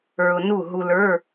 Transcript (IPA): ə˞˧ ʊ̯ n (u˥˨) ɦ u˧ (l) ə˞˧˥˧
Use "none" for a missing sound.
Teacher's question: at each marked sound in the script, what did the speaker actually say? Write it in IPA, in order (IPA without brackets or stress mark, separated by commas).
u˥˨, l